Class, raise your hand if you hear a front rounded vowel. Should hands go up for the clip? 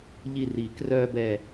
yes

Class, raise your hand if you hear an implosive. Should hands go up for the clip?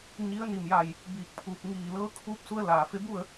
no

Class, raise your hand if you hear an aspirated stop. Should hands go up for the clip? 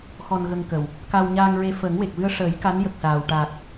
no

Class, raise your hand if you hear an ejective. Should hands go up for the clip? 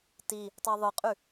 yes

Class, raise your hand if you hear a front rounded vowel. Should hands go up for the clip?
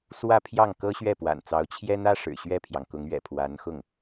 no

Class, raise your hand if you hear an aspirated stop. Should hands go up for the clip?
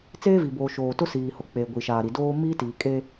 no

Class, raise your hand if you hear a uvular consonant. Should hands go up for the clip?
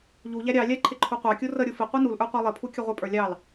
yes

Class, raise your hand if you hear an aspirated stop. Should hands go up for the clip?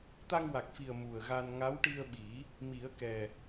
no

